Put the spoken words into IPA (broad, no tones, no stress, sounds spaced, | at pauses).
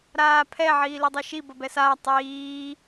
ɾ aː pʰ ɛ ʕ iː l i dˤ ɛ ʃ i b ʌ b ɛ s aː tˤ iː